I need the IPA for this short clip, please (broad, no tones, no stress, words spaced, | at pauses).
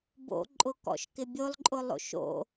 bo̰ǃʼʊkɔ̰ʃkɪ bʲolˠǃʼʊlˠo̰ʃ o̰